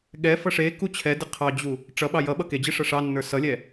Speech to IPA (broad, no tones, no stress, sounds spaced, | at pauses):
ɠ ɛ f ʌ ʂ e k u t͡ɕʰ ɛ d ɪ qʰ ɑ d͡ʑ u | ʈ͡ʂ ʌ ɓ ɑ j ʌ ɓ ʌ k e d͡ʑ ɪ ʂ ʌ ʂ ɑ nː ə˞ s ʌ lʲ ɛ